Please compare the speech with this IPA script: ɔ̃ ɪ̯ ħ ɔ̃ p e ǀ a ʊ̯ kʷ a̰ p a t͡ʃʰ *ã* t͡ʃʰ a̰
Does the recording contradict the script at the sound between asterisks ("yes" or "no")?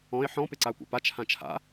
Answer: no